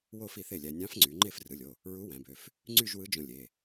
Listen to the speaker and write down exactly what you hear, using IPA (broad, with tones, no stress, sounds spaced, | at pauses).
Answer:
w o˥˧ f i˥˩ θ e˥˩ lʲ æ˧ nʲ ɑ̃˧˥ f ŋ͡ǀ y˩˧ ŋ͡ǃ e˥˩ f r ɯ˩˧˩ lʲ o˩˧˩ | ɹ u˧˥ w æ̃˩˧ b ø˩˧˩ f | ŋ͡ǀ y˥˧ ʒ w ɯ˧˥ d͡ʒ õ˧ lʲ e˩˧˩